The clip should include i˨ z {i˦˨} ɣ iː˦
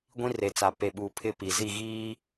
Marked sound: correct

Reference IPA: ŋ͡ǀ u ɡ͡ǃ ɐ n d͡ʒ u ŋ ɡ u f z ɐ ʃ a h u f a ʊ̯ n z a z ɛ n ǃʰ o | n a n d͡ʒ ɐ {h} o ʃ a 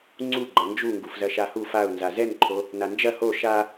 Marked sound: correct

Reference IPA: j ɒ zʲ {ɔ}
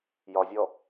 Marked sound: correct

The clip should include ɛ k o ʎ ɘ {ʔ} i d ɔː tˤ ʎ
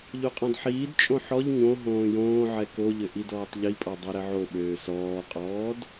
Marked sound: correct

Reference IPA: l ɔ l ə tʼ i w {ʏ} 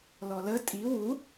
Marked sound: incorrect: u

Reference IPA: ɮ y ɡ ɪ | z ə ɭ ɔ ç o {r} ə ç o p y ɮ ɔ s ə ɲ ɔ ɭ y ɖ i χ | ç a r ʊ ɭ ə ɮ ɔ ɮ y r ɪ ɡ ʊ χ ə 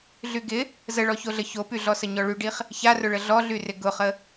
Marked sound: incorrect: ɮ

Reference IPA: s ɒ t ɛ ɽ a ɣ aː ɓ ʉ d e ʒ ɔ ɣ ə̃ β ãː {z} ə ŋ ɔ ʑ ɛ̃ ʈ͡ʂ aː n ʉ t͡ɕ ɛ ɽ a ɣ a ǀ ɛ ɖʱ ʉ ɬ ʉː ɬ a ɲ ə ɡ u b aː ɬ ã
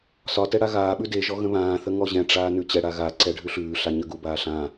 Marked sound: incorrect: θ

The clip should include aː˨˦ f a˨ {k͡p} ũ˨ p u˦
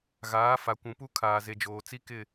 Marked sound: incorrect: kʷ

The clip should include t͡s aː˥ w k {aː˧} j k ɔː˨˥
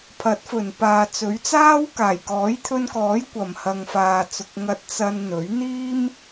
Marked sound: incorrect: aː˨˩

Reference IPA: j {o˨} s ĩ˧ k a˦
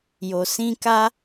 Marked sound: correct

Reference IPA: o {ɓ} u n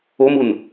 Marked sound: incorrect: m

